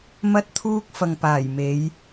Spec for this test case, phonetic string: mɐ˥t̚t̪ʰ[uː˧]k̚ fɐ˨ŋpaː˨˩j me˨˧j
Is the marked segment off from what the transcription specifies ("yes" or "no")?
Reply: yes